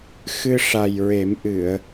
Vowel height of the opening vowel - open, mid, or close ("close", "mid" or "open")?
close